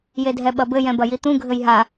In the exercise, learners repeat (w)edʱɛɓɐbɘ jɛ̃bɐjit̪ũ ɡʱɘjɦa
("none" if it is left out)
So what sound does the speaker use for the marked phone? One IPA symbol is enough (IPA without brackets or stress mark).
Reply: j